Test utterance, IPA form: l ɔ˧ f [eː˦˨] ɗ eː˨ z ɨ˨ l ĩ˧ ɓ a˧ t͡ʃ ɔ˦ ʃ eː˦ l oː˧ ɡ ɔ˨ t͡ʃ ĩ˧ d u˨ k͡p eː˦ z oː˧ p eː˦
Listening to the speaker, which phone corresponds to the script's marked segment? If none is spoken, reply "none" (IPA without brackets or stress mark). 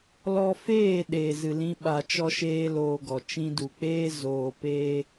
eː˦˨